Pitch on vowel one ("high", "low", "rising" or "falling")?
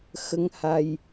rising